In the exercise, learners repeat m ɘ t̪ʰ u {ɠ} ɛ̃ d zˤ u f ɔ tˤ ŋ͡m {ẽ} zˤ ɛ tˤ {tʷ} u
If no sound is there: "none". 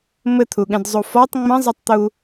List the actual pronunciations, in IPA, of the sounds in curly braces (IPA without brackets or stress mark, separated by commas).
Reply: ɠ, ɛ̃, t̪